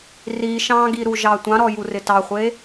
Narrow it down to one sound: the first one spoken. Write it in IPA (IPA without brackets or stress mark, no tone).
r